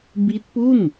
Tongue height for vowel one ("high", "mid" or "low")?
high